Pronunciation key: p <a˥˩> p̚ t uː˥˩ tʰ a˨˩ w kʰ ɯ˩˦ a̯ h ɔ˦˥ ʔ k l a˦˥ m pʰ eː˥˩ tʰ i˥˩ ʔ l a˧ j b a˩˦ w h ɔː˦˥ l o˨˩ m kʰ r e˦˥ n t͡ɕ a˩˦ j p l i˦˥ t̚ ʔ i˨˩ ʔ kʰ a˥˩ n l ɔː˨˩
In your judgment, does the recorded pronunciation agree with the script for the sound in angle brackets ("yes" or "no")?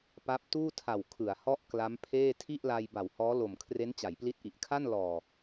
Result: no